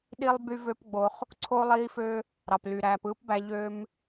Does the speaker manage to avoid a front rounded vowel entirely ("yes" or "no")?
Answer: no